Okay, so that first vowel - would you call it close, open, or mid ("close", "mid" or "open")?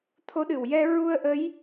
mid